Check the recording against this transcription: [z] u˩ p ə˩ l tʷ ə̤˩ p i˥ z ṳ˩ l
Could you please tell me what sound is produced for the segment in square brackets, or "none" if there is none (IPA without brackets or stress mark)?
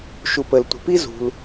ʃ